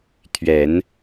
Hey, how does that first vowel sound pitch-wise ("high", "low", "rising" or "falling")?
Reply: low